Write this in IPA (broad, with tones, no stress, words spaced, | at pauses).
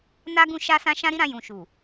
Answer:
na˦ɡũ˦˨ ʃa˧sã˧ ʃã˦ɾi˦ɾã˧ jũ˨ʃu˨